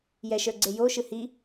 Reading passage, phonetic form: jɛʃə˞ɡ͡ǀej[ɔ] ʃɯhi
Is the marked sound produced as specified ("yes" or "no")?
no